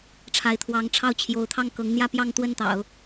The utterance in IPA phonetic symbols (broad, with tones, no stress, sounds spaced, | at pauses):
ʈ͡ʂʰ a˧˥ ɪ̯ t̪ʰ w ɑ˧˥ ŋ ʈ͡ʂʰ ɑ˥˩ ʊ̯ t͡ɕʰ j o˧˥ ʊ̯ t̪ʰ ɑ˥˩ ŋ k ɤ˧˥ ŋ n̪ j ä˥˧ p j ɑ˥˧ ŋ t̪ w ə˥˩ n t̪ ɑ̰˨˩˦ ʊ̯